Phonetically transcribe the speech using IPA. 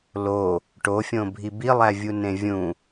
lo | ʈofʲõ bʱibilˠævʲu nẽvʲũ

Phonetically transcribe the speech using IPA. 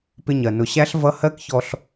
pɪ˧ɲɜ˨ nʊ˨ɕæ˦ɬ vʌ˦ hɜ˦kçɔ˧ɬ

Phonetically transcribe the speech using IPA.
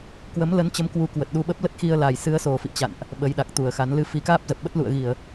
kwə˨˦mlə˨˦nt͡ɕə˨˦m kwu˨˦kwə˨˩t̚ɗu˧ ɓə˦˥p̚lə˦˥t̚xi˧ə̯la˨˩j sɨ˨˦ə̯so˨˩fḭ˧˨ t͡ɕa̰˧˨nʔ | ɓə˨˦jɗa˨˩k̚t̪u˨˩ə̯xa˨˦n lɨ˧ fi˨˦kaː˦˥p̚zə˨˩p̚ɓə˦˥t̚ lṵ˧˨ə̯ɣi˧˩˨ə̯

